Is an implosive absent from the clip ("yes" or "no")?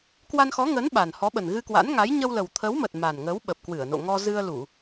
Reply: no